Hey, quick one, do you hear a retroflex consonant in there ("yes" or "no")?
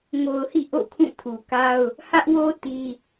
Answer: no